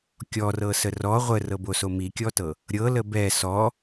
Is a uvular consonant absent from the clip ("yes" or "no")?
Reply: no